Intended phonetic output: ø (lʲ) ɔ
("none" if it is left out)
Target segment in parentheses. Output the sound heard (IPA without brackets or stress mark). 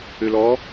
l